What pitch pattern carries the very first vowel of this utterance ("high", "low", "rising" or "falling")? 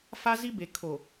high